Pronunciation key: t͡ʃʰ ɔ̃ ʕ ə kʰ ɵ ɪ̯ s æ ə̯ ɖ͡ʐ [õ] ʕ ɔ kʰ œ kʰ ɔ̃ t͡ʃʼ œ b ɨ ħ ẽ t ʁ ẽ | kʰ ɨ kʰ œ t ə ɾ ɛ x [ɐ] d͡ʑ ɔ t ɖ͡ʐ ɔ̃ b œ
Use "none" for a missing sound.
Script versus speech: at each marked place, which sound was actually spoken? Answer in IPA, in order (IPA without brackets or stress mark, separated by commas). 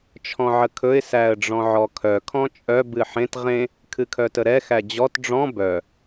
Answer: ɔ̃, æ